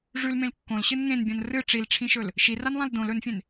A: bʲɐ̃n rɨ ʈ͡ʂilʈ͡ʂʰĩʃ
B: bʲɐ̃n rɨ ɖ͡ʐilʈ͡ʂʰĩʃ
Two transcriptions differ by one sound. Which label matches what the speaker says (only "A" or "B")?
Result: A